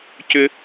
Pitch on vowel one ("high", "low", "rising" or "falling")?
high